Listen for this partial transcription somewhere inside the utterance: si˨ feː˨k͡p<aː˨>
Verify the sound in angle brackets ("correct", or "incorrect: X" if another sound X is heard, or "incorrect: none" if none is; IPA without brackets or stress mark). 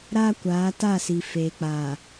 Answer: correct